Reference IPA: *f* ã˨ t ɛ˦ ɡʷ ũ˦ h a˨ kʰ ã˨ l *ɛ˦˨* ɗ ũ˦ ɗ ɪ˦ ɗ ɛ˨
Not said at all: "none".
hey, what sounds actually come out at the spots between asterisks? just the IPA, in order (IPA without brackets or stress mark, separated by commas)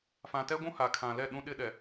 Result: f, ɛ˦˨